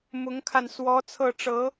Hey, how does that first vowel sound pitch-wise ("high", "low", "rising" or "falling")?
rising